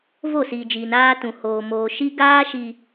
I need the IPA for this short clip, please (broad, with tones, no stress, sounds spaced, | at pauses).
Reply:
v o˦˨ s iː˨ d͡ʒ iː˨ n aː˦ t ũ˨ h oː˨ m oː˨ ʃ i˦ ɡ aː˦ ʃ i˨